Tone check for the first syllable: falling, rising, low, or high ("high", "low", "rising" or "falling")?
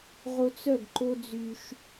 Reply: high